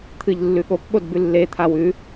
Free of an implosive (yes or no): no